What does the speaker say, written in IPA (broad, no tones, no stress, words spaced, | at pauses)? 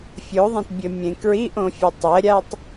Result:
fʲoðˤẽtbʲɘ mʲẽkɹiʔõfʲe tˤɛɾʲatˤ